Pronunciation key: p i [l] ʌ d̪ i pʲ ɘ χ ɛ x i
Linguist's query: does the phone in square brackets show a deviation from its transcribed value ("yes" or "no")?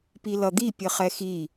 no